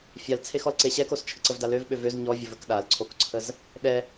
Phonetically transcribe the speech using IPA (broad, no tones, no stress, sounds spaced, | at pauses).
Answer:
fʲ a l t͡sʰ e x ɔ l ǀ e ɕ ɛ k o s t͡ʃʰ ə ǀ ə v d a l ø v ɓ ø v ø z ɲ ɔ vʲ ə v ə k ɗ a l ǀʰ o k ǀʰ ə z | ɗ ɛ